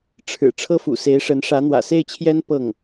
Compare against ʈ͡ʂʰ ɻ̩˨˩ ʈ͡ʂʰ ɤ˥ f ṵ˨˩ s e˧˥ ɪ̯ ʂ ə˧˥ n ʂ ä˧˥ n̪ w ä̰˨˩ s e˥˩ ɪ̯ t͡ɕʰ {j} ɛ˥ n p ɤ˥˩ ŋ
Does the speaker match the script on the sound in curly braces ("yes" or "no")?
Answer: yes